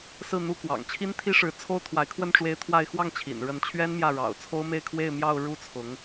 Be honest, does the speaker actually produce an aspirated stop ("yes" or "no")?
yes